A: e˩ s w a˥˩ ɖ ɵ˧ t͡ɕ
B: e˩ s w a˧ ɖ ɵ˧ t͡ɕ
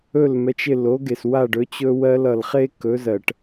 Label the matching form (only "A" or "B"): A